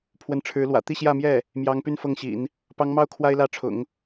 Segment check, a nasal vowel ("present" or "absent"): absent